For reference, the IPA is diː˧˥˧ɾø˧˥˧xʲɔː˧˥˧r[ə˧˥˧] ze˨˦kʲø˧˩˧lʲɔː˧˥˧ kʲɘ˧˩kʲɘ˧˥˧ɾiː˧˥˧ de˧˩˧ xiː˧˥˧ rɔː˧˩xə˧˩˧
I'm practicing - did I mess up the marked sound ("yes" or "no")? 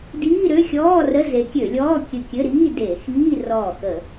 no